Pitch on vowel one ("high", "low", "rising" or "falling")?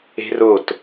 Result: high